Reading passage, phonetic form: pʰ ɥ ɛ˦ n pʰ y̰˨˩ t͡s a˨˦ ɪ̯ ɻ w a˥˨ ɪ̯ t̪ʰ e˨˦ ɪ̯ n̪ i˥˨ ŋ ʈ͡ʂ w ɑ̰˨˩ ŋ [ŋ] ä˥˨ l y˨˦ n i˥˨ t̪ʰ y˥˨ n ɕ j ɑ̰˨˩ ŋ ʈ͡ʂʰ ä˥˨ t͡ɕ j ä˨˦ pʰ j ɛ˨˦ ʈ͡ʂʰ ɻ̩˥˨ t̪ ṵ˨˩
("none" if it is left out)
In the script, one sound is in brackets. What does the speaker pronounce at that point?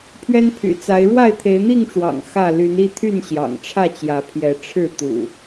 x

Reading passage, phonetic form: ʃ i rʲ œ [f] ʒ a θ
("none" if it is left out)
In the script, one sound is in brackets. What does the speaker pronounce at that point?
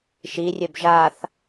b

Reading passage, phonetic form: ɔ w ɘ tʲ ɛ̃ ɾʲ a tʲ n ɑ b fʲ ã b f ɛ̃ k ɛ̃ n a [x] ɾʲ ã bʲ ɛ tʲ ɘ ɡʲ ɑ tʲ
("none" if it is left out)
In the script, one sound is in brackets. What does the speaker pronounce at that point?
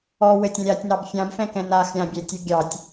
x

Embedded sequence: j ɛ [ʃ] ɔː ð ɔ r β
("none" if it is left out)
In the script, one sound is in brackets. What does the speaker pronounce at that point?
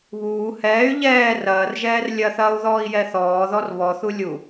θ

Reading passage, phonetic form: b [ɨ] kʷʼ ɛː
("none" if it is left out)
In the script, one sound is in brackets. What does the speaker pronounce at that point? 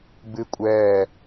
ɨ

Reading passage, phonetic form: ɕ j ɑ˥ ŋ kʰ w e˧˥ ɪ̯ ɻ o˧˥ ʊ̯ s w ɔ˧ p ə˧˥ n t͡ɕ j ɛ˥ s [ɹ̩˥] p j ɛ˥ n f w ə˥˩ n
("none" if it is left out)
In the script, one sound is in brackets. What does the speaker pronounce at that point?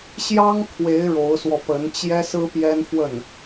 ɹ̩˥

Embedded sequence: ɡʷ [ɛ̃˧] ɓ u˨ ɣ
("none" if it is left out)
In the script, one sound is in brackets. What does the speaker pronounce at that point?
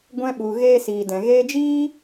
ɛ̃˧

